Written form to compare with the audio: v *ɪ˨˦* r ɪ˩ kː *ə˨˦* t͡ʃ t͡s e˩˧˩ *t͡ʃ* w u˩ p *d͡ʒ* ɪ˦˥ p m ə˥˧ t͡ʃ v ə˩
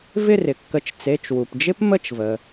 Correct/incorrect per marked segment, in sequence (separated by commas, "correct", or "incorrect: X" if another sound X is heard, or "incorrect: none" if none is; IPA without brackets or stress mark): incorrect: ɪ˥˧, correct, correct, correct